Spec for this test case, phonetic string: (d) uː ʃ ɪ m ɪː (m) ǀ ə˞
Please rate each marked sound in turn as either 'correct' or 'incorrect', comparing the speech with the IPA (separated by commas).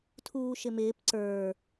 incorrect, incorrect